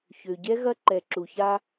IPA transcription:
ç ø˨ ɟ ɛ˦ ɣ ɐ˦ ǃ ɛ˨ ǁ u˨ ç a˦

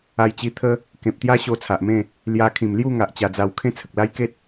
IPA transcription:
a˧ j t͡ɕ i˧ t̪ʰ ə˦ | k ẽ˨ p̚ t̪ j a˦ ɕ o˧ t͡sʰ a˨ ʔ m ẽ˥˧ | l j a˧ kʰ ĩ˨˩ m l j u˥˧ ŋ a˨ ʔ t͡ɕ a˧ d͡z a˧ w kʰ ẽ˥˧ t͡sʰ ə˨ k̚ l a˦ j k e˦ t̚

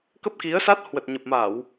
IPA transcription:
k ə˦˥ p̚ k i˨˦ ə̯ s a˦˥ t̚ h w ə˨˩ t̚ ɲ ə˨˩ p̚ m a˧˩˨ w

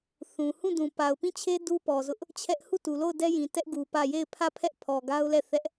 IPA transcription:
θ ũ˨ h ũ˦˨ d ũ˨ p a˨ ʊ̯ p ĩ˦˨ t͡ɕʰ e˦ d u˦ p ɔ˨ z ʊ˦ ʔ | t͡ɕʰ ɛ˦ ʔ h u˦˨ t u˨ l o˦˨ ʊ̯ d ɛ˦ j ĩ˨ t ɛ˦ ʔ ɡ u˨ p ä˦˨ j e˦˨ ɪ̯ pʰ ä˦˨ pʰ ɛ˦ ʔ pʰ ɔ˨ ɡ a˦ ʊ̯ l ɛ˦˨ θ ɛ˦ ʔ

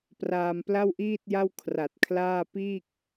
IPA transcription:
p r aː˧ m p l a˥˩ w ʔ iː˥˩ t̚ j a˥˩ w kʰ r a˨˩ t̚ kʰ l aː˥˩ p iː˥˩ k̚

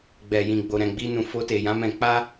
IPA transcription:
ɡ͡b ɛ˨ j ĩ˨ ɡ͡b o˨ ɾ ɛ̃˨ ɡ͡b i˧ n ũ˨ f o˧ t e˨ j ã˨˦ m ɛ̃˧ k͡p a˦

